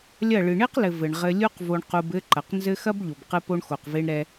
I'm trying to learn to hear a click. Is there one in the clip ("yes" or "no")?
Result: yes